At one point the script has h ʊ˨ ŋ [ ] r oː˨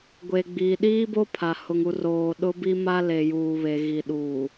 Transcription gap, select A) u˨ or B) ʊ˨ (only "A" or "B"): A